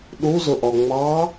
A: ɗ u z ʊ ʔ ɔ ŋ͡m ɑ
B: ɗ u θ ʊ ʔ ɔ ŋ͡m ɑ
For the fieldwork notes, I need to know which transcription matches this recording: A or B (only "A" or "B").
A